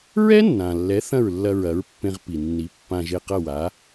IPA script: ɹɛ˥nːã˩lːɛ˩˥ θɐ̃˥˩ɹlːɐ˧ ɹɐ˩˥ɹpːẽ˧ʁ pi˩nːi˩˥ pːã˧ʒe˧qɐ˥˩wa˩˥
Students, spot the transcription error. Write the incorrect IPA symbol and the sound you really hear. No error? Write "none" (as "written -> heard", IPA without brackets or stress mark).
none